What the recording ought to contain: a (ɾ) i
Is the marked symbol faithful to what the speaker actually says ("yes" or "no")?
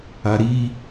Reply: yes